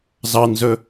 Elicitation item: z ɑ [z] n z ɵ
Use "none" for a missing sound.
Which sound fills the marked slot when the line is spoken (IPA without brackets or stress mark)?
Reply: none